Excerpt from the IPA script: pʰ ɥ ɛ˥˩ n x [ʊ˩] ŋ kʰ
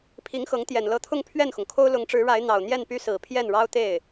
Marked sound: correct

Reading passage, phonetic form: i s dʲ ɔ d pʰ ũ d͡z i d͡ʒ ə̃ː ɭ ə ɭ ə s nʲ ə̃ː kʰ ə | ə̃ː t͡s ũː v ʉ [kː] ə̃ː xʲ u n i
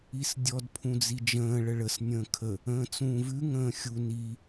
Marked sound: incorrect: ŋ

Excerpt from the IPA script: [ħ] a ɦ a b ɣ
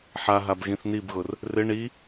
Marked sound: correct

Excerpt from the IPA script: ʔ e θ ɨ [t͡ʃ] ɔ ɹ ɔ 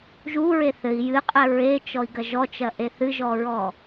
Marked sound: incorrect: ʒ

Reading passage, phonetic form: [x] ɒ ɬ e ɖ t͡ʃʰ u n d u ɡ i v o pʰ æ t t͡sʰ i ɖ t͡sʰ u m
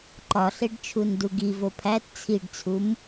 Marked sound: incorrect: ǃ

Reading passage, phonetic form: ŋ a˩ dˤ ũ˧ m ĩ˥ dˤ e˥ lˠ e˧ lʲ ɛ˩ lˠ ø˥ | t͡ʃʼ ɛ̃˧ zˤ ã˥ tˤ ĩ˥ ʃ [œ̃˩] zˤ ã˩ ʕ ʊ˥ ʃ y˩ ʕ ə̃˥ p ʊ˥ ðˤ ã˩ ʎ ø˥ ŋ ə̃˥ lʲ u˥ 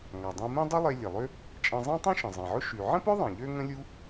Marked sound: incorrect: ə̃˩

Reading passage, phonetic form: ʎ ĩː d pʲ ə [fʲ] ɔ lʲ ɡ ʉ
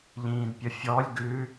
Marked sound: correct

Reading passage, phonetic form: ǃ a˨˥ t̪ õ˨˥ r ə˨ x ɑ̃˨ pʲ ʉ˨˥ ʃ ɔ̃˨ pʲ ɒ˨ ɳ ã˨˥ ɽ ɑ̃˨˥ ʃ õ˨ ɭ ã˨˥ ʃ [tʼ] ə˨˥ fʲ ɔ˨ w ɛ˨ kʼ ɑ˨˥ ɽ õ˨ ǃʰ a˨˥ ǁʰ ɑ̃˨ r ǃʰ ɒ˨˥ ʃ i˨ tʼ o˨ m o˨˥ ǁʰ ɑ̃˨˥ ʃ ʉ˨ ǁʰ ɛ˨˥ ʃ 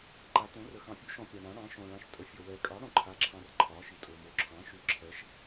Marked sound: correct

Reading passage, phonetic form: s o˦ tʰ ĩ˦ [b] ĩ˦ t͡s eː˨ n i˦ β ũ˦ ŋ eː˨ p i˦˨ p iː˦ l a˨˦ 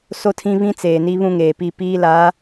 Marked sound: incorrect: β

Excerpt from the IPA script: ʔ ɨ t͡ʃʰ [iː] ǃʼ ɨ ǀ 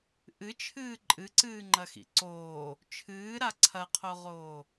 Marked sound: incorrect: ɨː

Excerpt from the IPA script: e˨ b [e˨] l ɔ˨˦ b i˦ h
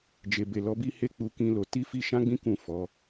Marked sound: correct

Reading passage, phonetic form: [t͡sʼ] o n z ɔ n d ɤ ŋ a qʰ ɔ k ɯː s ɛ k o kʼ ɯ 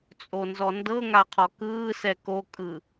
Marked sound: correct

